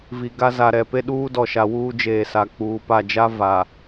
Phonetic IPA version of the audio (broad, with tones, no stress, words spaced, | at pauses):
vi˨ɡa˦ za˨ɾɛ˨pe˦ ɗuː˦dɔ˨ʃa˨wuː˦ d͡ʒeː˨sa˨ k͡puː˨pa˦˨ d͡ʒa˦ va˨